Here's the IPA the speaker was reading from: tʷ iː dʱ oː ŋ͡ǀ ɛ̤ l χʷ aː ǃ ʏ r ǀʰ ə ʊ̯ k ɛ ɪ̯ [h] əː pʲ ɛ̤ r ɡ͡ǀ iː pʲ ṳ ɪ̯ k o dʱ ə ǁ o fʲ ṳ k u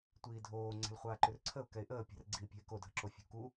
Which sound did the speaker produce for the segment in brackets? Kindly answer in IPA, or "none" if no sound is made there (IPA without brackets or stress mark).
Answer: ʔ